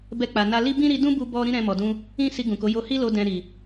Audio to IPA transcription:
b ɛ˧ k͡p a˨ n a˧ l i˦ b ĩ˦ ɾ i˧ d ũ˦ b u˧ b ɔ˧ ɾ ĩ˦ ɾ ɛ̃˧ m ɔ˨ d ũ˧ | ĩ˦ s i˧ ɡ ũ˨ k o˨˦ j o˧ h i˦ l o˧ d ɛ̃˧ ɾ i˨

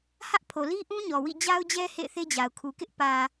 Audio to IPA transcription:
h ä˦ ʔ pʰ o˨ l i˦ ʔ ũ˦ ɲ ɔ˨ w ḭ˦˨ d͡ʑ a˦ ʊ̯ d͡ʑ ɛ˦ h ḛ˦˨ ɪ̯ θ e˦ d͡ʑ a˨ ʊ̯ kʰ u˨ k ɪ˦ ʔ p ä˨

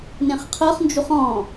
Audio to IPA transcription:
n ẽ χ qʰ ɤ χ n d͡ʒ u χ ɔ̃

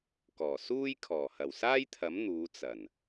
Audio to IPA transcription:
k ɔː˨˩ s uː˥ j kʰ ɔː˨˩ h ɐ˨˩ w s aː˥ j t̪ʰ ɐ˨˥ m n̪ uː˨˧ t͡s ɐ˨˩ n

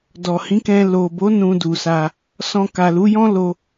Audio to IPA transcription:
d ɔ˨ h ĩ˨˦ k ɛ̃˧ l o˨ b o˨˦ n ũ˧ d u˨ s a˧ | s ɔ̃˧ k a˨ l u˨˦ j ɔ̃˦ l o˧

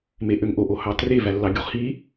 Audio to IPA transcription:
m e ʔ ø ŋ ʔ o ʔ o h ɑ t r e v æ lː ɑ ɡʲ u χ h i

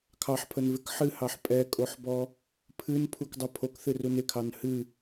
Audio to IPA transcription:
kʰ ɑ ħ pʰ ə n v ɪ k ħ ɨ h ɑ ħ pʼ ɛ kʼ o ħ b ɔ | pʰ ɨ n pʰ u k dˤ ə pʰ o k θ ɨ r u n ɪ kʰ ɑ n h ɨ

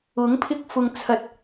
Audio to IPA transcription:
ʊ˨˥ ŋ pʰ ɪ˧ k̚ f ʊ˨ ŋ t͡sʰ ɐ˨ t̚

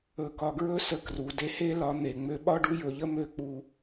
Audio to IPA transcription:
ɵ˨ k ɒ˨ ɡ ɹ ɵ˦ s ə˨ k r u˨ d e˦ h e˦ l ɒ˨˦ n̪ e˨ ŋ͡m ø˦ ɓ ɒ˦ ɖ u˦ j ɵ˨ ʎ ə˦ m ø˦ k͡p u˦

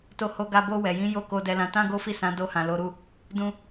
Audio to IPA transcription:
t o˧ h o˧ ɡ a˧ b o˧ w ɛ˨ j ĩ˨˦ j o˧ k o˨ d ɛ˨ l ã˨ t ã˧ ɡ o˦ f i˦˨ s ã˨˦ d o˧ h ã˨ l o˨˦ ɾ u˦˨ | d ũ˧

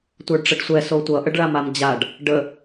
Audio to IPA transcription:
tʷ ə˞ ɖ ʈ͡ʂ ə ɖ sʷ ɛ s o tʷ ʌ ʔ ə ɖ ɭ a m a m d͡ʑ a ɖ | ɖ ə

